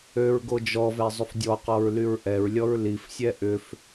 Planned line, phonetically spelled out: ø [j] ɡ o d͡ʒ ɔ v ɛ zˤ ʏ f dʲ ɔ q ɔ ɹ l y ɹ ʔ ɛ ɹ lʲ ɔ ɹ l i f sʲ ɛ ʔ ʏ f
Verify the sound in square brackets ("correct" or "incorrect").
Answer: incorrect